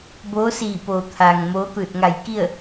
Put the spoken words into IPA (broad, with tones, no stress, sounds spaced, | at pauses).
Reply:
b oː˧˥ s iː˧˩ p oː˩ t̪ʰ aː˩ ŋ m oː˧˥ t̪ ɯː˧˩ t̚ ŋ a˧˩ j k i˥˨ ə̯